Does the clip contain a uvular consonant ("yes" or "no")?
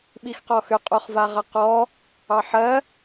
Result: yes